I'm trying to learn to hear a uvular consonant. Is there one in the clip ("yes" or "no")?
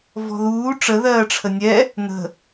no